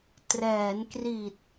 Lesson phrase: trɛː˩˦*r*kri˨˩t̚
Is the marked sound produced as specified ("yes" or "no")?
no